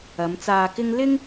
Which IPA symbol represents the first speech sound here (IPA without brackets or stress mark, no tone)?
ɐ